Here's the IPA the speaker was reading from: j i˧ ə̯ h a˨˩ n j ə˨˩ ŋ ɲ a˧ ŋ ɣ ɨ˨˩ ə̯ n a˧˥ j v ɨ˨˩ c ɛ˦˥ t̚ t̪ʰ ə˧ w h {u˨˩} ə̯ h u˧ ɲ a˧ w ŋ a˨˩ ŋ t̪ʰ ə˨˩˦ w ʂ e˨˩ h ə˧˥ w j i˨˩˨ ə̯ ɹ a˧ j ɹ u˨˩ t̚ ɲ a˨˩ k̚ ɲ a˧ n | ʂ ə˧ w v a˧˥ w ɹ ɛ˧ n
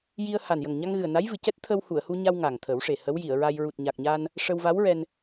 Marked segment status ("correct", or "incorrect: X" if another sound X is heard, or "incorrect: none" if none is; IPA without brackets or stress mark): incorrect: u˨˩˨